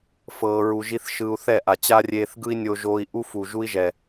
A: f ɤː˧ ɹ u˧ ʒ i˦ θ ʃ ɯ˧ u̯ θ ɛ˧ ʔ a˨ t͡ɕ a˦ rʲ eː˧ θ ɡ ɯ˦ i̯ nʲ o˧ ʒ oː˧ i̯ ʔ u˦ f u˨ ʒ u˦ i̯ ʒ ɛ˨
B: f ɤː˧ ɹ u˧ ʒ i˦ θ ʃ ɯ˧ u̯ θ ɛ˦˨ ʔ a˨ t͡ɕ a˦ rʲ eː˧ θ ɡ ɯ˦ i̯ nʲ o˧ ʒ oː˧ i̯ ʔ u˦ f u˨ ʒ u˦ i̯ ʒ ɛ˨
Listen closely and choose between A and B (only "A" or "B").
B